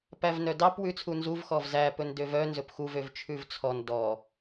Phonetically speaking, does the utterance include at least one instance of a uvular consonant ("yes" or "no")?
no